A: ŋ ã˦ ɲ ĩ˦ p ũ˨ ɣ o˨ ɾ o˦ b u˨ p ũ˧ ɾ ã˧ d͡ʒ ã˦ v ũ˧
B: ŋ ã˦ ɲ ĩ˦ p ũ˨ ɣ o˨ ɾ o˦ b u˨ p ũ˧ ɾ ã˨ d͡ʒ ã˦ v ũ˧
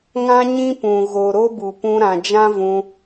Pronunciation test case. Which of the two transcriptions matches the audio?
B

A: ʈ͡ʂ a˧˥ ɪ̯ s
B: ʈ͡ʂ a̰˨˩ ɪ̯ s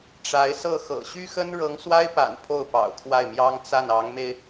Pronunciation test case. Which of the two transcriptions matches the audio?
A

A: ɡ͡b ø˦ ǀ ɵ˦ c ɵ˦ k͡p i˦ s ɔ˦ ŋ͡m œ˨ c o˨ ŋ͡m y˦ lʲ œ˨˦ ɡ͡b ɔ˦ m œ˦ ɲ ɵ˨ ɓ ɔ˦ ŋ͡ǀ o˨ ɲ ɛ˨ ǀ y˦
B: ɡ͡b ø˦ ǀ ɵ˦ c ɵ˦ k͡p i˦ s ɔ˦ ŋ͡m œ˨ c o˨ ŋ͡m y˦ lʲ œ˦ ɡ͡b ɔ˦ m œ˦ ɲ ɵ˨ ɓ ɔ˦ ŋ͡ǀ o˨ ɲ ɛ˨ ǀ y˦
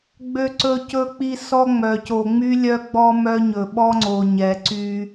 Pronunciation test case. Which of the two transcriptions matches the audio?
B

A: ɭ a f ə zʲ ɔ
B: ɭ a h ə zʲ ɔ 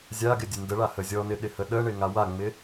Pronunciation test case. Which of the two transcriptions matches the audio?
B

